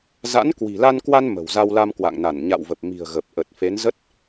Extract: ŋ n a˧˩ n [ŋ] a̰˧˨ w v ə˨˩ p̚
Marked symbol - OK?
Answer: no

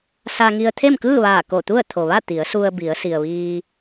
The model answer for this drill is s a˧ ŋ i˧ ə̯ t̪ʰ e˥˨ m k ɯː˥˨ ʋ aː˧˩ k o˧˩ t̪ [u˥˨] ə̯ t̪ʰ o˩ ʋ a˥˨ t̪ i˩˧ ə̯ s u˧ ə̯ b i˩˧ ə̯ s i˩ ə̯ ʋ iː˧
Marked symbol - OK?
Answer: yes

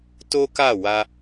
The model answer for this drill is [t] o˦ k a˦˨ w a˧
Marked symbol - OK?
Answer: yes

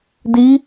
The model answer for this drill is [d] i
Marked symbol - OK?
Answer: yes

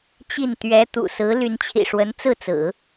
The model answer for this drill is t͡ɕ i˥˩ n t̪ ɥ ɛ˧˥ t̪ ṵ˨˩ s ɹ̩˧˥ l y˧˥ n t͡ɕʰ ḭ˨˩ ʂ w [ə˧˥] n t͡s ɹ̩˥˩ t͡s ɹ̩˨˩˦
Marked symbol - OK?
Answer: yes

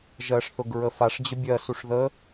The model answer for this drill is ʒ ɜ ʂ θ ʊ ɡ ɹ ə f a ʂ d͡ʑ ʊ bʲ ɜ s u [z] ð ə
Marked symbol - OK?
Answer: no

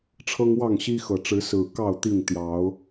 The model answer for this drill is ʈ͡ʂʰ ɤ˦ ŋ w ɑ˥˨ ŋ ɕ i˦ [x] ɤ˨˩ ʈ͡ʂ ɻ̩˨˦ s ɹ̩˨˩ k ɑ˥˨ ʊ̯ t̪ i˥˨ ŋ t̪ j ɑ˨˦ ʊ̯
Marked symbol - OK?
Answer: yes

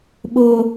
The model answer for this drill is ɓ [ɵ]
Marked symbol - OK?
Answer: no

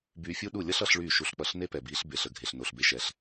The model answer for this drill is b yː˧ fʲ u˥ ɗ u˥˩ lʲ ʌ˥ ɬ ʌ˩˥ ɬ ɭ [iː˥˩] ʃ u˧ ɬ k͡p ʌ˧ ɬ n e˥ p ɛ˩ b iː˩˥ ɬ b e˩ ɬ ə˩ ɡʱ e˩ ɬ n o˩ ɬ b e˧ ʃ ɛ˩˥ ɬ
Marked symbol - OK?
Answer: no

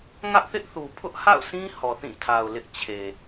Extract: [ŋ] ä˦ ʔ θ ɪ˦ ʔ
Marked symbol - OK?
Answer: yes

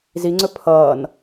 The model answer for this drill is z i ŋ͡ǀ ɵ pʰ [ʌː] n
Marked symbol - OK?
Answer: yes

